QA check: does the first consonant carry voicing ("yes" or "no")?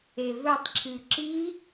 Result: yes